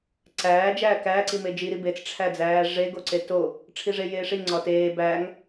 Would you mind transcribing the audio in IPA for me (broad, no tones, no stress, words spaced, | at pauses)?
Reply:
ǀæː d͡ʒæːkæ ǀimed͡ʒi ɾibet͡s ʈ͡ʂʰæd͡zæːʐe ɡoǀeto | ʈ͡ʂʰiʐejeːʂi ŋ͡ǀɒteː bæːŋ